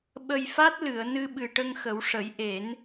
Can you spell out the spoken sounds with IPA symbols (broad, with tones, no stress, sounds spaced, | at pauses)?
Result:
ɓ ə˧ j f a˦˥ t̚ l ɨ˨˩˨ ə̯ n ɨ˧ ɓ ɨ˨˩ ʈ ə˧ ŋ x ə˨˩˦ w ʂ ə˨˩˦ j ʔ e˨˩˦ n